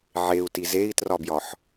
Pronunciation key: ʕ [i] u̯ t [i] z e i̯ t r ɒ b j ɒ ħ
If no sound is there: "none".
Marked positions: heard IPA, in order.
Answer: e, i

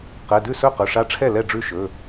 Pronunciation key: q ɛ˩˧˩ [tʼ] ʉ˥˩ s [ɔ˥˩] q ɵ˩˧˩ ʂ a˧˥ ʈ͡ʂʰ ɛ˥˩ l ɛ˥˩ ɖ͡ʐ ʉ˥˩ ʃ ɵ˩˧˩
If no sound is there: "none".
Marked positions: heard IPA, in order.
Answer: d, ɵ˥˩

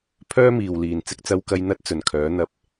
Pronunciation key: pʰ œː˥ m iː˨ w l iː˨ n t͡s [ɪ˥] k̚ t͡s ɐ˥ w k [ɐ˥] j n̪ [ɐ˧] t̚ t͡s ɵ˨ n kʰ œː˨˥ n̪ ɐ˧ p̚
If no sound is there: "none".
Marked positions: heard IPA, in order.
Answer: ɪ˥, ɐ˥, ɐ˥

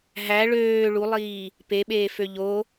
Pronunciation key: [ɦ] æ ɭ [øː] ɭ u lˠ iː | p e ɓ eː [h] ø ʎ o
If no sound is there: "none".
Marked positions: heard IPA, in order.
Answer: ɦ, øː, f

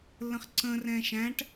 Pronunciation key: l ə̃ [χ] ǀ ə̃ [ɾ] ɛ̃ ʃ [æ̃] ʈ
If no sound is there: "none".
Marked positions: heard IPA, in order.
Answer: χ, r, æ̃

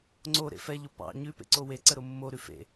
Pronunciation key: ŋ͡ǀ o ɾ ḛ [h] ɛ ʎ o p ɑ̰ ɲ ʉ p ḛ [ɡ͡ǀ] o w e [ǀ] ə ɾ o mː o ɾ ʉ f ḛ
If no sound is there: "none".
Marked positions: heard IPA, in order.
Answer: f, ǀ, ǀ

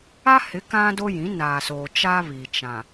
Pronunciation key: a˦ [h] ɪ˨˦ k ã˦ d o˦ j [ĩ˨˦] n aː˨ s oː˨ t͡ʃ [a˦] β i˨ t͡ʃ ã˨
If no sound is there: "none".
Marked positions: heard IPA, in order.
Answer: h, ĩ˨˦, a˦

